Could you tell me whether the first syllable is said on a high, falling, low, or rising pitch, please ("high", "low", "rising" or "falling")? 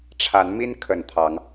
rising